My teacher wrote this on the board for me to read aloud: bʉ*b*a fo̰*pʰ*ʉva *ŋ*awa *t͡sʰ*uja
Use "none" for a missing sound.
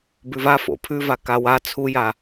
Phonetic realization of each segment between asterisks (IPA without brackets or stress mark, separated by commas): v, pʰ, k, t͡sʰ